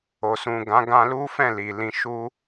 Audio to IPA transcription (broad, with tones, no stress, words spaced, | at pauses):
o˨sũ˨ɡã˨˦ɡã˧ lu˦fɛ̃˦˨ li˨lĩ˧ʃu˦